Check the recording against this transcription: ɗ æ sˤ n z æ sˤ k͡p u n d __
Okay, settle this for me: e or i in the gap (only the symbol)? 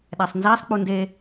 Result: e